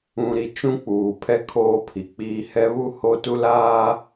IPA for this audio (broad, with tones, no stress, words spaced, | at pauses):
ũ˨ɾi˨ t͡ʃũ˦k͡puː˨pʰɛ˦ kʰoː˦pʰi˨k͡piː˦ hɛ˦βu˦ho˦tu˦ laː˦